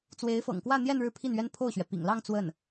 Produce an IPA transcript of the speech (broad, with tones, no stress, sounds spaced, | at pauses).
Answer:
t͡s w e˧˥ ɪ̯ f ɤ̰˨˩ ŋ k w ä˥˧ n̪ j ɛ˥˧ n ɻ ɻ̩˥˧ pʰ i˥˩ n ɥ ɛ˥ n pʰ o˥˩ ʊ̯ ɕ ɥ ɛ˩ p ḭ˨˩ ŋ l ɑ˥˧ ŋ t͡s w ə˥˩ n